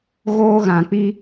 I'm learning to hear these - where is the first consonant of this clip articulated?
velum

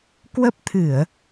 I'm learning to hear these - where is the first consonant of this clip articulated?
velum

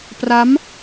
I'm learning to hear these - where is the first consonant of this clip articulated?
lips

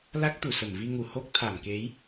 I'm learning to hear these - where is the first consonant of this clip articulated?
tongue tip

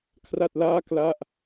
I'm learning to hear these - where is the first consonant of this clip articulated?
velum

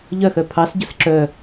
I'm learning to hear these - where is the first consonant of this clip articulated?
palate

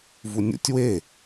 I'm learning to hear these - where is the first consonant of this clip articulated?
lips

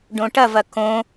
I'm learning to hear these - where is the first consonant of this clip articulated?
retroflex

